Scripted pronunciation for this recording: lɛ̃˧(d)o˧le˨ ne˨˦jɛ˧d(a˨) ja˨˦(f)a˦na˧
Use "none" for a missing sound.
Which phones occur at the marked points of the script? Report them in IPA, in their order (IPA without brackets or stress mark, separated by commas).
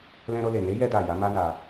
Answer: ɾ, a˨, m